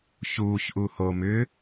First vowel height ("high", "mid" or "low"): high